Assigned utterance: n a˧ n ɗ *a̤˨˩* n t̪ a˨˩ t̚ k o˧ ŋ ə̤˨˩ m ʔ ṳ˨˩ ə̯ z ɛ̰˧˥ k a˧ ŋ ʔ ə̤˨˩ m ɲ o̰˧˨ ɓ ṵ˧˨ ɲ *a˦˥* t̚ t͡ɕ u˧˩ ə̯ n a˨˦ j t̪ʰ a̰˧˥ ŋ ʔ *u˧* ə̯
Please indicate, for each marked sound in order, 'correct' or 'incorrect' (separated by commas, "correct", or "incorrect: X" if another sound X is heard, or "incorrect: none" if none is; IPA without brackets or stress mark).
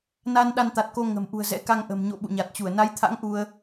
incorrect: a˧, incorrect: a˨˩, correct